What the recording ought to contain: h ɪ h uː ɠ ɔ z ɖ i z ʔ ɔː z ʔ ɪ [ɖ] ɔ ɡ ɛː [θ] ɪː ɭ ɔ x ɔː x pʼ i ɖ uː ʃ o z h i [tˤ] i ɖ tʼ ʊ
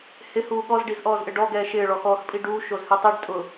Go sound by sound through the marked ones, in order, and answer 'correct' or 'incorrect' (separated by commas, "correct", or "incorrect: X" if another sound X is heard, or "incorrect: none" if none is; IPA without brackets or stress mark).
correct, incorrect: ʃ, correct